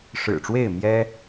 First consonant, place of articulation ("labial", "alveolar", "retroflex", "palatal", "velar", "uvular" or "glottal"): retroflex